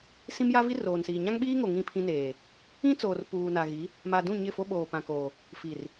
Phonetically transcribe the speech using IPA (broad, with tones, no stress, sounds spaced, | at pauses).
s ĩ˦ m j a˦ v i˦ r oː˨ n s iː˨ ɲ ã˦ ŋ ɓ iː˦ ŋ o˨ ŋ ĩ˦˨ pʰ ĩ˦ n eː˨ | ĩ˦ t͡s oː˨ r p uː˨ n a˨ ɣ i˨˦ | m a˨ d ũ˦˨ ɲ ɪ˦˨ f o˦ ɓ oː˨ p ã˨ k oː˨ | f i˨ r